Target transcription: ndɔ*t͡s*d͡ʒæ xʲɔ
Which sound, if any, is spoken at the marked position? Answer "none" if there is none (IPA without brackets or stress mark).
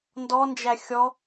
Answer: n